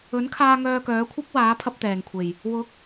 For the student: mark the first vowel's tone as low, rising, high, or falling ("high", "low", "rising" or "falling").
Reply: rising